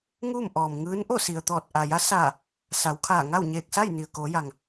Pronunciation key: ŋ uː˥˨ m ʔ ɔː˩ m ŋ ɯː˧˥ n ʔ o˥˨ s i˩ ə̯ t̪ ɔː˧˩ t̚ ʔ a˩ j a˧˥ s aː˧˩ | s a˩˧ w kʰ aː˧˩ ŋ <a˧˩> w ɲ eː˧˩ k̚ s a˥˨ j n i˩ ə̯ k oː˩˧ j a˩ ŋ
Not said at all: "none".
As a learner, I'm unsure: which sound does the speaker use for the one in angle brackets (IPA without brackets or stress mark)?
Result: a˥˨